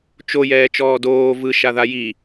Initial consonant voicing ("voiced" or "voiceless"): voiceless